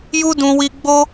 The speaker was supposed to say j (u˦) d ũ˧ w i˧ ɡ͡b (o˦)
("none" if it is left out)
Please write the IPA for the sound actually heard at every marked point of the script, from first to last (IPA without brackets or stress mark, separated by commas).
u˦, o˦